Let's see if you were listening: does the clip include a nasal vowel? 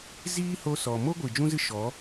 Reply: yes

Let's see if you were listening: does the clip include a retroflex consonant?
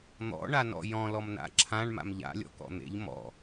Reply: yes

